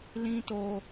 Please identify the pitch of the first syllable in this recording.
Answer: high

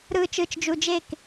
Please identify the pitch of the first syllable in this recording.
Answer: low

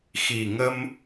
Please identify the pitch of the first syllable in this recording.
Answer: low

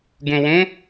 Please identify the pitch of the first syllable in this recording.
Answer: low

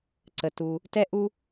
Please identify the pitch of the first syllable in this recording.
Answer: low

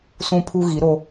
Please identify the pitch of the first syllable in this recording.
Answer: high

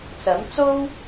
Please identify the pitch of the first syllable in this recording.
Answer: rising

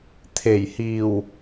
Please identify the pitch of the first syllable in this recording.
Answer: low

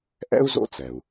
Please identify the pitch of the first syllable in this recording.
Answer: high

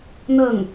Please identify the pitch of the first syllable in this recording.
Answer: falling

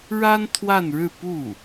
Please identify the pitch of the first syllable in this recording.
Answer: high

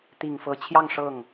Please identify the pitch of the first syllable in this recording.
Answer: low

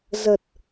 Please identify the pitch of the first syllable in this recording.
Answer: low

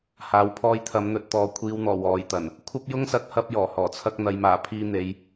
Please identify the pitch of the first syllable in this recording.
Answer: low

